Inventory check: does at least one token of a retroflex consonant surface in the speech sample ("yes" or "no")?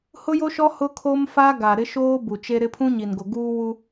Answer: no